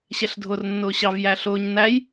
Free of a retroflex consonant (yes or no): yes